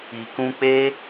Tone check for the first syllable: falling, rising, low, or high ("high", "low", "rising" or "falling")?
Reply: low